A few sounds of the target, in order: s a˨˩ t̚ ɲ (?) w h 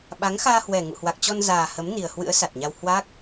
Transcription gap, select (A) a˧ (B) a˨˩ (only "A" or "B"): A